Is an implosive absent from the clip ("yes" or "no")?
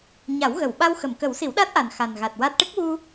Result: no